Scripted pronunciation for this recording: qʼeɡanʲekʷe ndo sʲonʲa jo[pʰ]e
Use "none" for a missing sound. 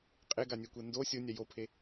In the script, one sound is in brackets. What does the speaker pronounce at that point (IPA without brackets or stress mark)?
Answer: pʰ